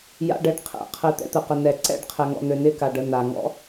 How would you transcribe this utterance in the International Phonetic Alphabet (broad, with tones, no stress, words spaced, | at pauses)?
ja̰˦ɖɛ˧ɖqʰɛ̰˨˦ qʰɘ˧ t̪ɛ̰˧t̪ə˨qə˨ nɛ˨ǀɛ̰˦˨ɖqʰɛ˨ŋɔ̰˨ n̪ø˨nɪ˧ka˨ɖ ə˧na˨ŋɔ̰˦